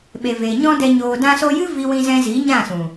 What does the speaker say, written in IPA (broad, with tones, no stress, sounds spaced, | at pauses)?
ɓ e˨ v e˨ ɲ ɔ̃˦ d ɛ˧ ɲ oː˨ d ã˧ s o˧ j ɨ˦ v i˦ w ĩ˦ z ɛ̃˦ z i˨˦ ɲ ã˦˨ s ũ˨